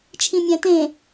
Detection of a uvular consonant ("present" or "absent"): absent